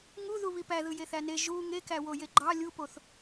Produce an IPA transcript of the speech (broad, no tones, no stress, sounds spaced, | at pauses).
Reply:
ŋ u ð u β i p æ ð ɯ j e θ æ n e ʒ u ŋ e k æ w o j e ɡ͡ǃ ɑ lʲ u p o θ